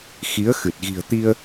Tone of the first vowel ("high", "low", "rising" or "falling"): rising